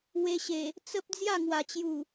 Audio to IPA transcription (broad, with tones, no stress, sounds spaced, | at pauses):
w e˧ ɕ e˨˩ | t͡s ə˦ p̚ d͡z j a˥˧ ŋ w a˨˩ t͡ɕ j u˨˩